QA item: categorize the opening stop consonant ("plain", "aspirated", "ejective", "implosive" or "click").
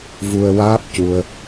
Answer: plain